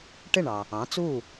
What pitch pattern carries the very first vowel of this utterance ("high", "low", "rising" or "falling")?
falling